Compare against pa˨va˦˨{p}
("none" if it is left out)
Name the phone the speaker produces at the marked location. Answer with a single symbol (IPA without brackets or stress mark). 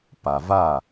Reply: none